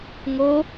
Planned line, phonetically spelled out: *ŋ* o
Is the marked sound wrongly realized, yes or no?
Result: no